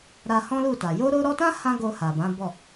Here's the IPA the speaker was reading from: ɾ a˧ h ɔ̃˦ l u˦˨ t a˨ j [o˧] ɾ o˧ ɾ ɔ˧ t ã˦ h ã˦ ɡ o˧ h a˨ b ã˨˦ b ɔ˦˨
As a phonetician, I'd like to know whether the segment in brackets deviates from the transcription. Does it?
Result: no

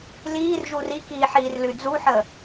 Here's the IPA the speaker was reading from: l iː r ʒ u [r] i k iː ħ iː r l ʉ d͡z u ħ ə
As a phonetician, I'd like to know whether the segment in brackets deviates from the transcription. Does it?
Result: no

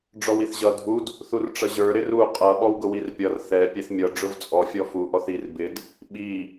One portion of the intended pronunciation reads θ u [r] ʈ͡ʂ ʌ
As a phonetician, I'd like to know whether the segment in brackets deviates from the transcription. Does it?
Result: no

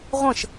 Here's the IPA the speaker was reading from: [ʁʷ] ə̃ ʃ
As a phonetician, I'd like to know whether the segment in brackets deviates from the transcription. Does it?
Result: no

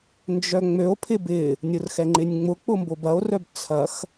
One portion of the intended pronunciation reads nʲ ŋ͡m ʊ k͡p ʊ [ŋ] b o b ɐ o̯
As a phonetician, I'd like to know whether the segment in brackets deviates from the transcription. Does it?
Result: yes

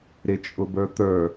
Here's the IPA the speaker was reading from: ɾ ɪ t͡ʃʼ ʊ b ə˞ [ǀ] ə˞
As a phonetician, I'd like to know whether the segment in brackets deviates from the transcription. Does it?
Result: yes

